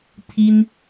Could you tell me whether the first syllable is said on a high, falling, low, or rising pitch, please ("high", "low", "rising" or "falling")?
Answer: high